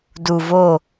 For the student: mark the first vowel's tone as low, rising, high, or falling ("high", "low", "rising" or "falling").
low